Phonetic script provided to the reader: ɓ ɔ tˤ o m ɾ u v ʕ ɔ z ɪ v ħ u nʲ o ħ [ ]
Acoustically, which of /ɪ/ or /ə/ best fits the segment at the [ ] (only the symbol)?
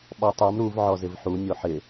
ɪ